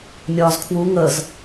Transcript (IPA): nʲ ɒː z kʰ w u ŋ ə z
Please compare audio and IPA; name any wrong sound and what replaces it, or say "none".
none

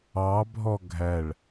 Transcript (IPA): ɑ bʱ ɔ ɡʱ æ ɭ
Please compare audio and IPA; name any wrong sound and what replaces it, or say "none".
none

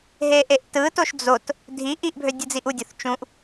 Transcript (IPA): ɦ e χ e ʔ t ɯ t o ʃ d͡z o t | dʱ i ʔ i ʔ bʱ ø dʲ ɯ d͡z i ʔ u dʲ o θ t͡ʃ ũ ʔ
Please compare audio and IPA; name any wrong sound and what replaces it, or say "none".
χ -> ʔ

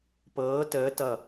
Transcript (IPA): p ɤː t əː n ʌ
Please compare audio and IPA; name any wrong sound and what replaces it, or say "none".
n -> t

